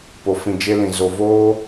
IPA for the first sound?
p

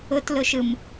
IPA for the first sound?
ʊ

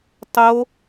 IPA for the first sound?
tˤ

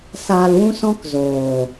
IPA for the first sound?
s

